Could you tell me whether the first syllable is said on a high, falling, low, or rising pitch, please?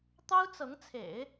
high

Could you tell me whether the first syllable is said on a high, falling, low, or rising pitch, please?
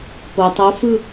low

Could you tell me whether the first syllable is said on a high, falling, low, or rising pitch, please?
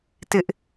high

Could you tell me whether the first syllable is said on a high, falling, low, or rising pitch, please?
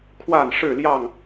falling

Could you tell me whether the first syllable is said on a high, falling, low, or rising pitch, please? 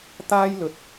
high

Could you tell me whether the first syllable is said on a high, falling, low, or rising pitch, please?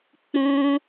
high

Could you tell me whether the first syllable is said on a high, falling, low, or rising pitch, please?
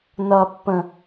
low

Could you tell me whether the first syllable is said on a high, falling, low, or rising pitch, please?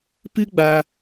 high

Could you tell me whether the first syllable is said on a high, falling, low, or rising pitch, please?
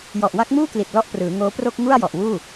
low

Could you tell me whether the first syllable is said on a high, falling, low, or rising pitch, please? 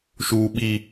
low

